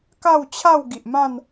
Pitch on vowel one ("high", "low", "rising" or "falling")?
falling